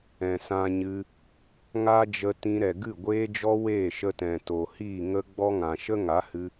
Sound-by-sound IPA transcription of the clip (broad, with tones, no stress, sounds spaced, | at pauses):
ɛ̃˨ s ã˧ ɲ ɨ˧ | ŋ a˦ d͡ʒ ə˧ t ĩ˧ ɾ ɛ˨ ɡ ɨ˦˨ ɡʷ eː˧ d͡ʒ ɔ˧ w eː˦˨ ʃ ə˧ t ɛ̃˨ t o˨ h iː˦˨ ŋ ə˦ ɡ͡b ɔ˦ ŋ ã˨ ʃ ə˦ ŋ a˨˦ h ɨ˧